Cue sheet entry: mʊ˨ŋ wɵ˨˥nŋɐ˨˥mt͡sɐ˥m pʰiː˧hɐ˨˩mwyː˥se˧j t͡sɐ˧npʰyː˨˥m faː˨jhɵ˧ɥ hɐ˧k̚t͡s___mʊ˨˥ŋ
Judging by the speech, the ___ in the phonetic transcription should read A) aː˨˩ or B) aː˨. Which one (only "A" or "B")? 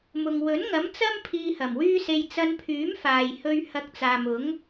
B